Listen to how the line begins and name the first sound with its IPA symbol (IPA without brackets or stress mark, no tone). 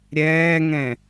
ɾʲ